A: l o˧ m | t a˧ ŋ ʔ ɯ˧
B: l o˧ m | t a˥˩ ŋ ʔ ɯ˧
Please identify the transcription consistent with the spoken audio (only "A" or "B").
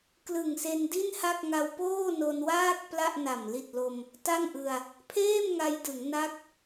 B